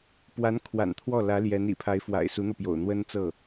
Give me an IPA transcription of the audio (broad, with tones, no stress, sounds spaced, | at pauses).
p w a˧˥ n kʰ w a̰˨˩ n t̪ʰ w ɔ˥˩ l ä˧˥ l j ɛ˧˥ n ḭ˨˩ pʰ a˧˥ ɪ̯ f w a̰˨˩ ɪ̯ s u˧˥ n̪ ɤ˧ p j o̰˨˩ ʊ̯ n̪ w ə˥ n t͡s ɤ˥˩